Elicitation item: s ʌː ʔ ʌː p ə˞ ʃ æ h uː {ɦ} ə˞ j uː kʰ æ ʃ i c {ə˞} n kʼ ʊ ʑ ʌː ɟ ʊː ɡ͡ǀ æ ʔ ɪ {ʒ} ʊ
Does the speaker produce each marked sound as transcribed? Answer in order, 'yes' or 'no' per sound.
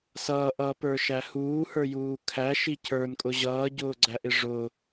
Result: no, yes, no

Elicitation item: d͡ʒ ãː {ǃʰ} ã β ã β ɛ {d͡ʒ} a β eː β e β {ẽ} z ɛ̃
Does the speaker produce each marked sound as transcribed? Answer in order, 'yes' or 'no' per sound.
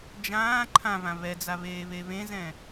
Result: yes, no, yes

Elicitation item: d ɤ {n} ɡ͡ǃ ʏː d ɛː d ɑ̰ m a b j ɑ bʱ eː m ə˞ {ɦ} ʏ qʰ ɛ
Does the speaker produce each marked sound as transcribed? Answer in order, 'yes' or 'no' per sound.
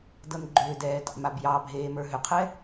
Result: yes, yes

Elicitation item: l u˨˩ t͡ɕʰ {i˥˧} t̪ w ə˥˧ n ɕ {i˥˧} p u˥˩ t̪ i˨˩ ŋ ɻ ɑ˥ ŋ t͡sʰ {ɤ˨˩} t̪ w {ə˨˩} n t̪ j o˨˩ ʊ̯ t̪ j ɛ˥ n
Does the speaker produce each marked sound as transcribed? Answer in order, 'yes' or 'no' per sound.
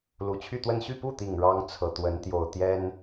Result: no, no, yes, no

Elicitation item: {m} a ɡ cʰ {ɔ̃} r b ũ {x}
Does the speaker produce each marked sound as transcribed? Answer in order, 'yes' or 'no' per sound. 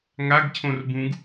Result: no, no, no

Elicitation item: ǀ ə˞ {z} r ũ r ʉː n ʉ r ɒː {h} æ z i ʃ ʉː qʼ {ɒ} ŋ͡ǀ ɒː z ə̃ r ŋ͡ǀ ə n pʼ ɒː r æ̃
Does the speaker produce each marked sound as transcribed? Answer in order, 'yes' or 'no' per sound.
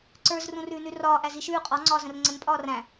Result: yes, no, yes

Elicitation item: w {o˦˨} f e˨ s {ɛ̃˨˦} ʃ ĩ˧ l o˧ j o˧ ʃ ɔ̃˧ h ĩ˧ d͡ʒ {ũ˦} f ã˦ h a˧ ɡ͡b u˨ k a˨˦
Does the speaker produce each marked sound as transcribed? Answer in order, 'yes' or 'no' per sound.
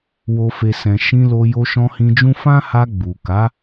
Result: no, no, yes

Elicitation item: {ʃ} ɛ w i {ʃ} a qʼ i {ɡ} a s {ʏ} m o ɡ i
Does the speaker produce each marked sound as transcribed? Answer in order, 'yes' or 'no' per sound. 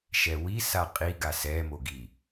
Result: yes, no, yes, no

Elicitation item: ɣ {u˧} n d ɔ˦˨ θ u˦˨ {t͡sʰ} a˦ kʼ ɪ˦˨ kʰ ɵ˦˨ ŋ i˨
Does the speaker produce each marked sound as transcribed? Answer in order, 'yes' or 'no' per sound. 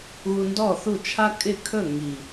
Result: yes, no

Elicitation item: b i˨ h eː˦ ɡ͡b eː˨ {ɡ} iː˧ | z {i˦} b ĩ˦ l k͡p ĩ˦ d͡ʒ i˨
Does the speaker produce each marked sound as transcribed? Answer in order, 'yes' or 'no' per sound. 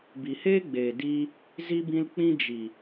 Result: no, yes

